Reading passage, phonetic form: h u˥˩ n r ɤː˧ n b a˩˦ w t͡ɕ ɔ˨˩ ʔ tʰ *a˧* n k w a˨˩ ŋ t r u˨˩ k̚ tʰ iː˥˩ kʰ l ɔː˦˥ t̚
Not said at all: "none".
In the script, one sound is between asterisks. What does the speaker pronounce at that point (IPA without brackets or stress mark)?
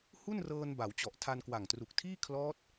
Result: a˧